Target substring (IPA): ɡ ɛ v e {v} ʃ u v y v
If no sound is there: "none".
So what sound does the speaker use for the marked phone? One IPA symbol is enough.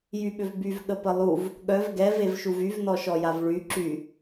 v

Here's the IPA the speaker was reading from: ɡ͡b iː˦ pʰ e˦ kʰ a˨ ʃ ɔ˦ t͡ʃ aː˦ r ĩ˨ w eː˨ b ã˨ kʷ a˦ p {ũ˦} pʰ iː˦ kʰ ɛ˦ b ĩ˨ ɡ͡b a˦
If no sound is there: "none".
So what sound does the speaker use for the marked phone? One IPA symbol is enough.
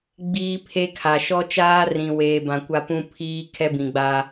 ũ˦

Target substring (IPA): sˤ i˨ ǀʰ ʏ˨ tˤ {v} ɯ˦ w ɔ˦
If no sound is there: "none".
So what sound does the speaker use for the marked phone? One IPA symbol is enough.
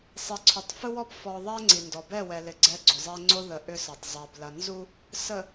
f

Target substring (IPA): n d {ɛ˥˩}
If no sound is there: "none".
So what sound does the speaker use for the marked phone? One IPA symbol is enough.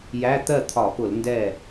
ɛ˥˩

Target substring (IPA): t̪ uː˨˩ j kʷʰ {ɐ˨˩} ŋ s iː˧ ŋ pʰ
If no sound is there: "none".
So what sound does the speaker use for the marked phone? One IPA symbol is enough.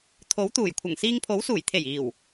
ɐ˨˩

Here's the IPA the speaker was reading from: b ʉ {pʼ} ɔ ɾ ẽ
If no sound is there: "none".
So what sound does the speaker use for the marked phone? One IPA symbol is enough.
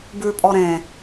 pʼ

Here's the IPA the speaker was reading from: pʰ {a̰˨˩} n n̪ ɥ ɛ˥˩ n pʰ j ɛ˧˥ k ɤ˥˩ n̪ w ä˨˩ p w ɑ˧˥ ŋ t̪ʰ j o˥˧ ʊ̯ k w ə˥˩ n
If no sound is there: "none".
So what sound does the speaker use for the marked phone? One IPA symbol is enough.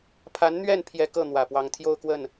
a˧˥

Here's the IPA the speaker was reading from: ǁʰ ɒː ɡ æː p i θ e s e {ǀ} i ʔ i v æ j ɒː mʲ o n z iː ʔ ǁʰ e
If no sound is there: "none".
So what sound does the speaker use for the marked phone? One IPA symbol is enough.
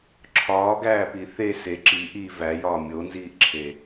ǁ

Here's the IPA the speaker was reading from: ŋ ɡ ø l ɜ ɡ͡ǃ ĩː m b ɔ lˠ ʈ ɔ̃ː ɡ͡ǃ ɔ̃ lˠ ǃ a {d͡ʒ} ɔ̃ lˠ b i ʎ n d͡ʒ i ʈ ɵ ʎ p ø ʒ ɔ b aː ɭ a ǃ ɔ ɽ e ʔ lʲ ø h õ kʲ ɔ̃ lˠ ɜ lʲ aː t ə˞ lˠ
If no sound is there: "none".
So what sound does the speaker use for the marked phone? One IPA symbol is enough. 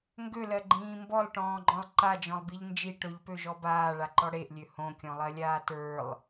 d͡ʒ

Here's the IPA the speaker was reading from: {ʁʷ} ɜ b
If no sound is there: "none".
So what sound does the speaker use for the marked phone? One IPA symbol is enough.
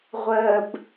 ʁʷ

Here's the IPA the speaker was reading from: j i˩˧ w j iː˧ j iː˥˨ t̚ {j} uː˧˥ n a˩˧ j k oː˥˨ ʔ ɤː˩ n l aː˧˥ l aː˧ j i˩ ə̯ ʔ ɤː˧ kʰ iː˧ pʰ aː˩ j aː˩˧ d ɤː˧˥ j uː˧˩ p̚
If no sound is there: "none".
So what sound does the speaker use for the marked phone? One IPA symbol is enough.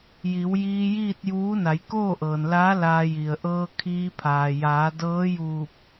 j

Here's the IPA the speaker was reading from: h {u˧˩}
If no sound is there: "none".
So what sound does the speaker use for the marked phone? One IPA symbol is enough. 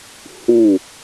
u˧˩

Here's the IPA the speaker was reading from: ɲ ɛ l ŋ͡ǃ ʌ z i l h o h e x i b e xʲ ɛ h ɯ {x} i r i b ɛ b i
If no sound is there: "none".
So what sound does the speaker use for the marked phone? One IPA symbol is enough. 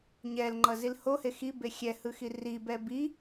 x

